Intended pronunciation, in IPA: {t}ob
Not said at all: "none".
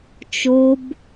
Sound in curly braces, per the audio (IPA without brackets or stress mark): t͡ʃ